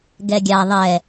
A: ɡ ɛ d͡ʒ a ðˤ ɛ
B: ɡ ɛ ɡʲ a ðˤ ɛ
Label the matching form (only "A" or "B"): B